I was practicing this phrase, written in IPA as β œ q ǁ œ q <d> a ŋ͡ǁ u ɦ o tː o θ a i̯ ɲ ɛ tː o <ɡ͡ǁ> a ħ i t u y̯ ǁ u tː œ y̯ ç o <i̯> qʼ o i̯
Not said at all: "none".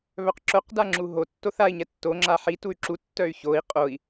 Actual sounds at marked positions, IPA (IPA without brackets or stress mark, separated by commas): d, ŋ͡ǁ, i̯